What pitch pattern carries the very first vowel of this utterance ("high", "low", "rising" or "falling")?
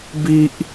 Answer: high